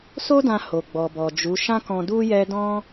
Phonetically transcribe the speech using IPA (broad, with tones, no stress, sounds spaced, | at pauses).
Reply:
s o˦ d ã˧ h o˨ ɡ͡b ɔ˨ b ɔ˨ d͡ʒ u˨˦ ʃ ã˦ k ɔ̃˧ d u˦ j ɛ˦ d ɔ̃˦